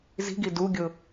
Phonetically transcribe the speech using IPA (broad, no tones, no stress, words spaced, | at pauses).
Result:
zi̤ɡi duɡʲʊ